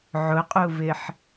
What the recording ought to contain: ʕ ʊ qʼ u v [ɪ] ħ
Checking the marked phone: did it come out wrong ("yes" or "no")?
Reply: no